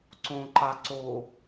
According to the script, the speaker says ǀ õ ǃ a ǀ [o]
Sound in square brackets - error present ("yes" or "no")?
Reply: no